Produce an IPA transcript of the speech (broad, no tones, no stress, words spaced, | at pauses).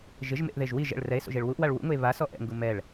ʒɪʒmḛʔðeʒ wiʒ ɛ̰ɭ rɛe̯so̰ʒeɭ wuʔwaɭ wṵŋʊe̯ βasɔ ʔɛ̰ŋɡu mɛɭ